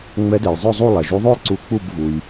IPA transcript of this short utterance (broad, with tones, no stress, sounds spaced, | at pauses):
ŋ͡m ɛ˨˦ d ɛ˩ j zˤ œ˦˨ zˤ u˦˨ lˠ ɛ˩ ʒ u˨˦ ðˤ o˦˨ j ǀ u˨˦ k͡p u˦˨ b v u˩ j